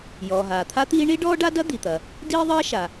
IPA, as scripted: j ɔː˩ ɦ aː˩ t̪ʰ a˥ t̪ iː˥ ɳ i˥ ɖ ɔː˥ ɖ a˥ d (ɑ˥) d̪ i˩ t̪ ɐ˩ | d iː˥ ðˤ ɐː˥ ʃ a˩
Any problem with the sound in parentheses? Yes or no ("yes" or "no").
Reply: yes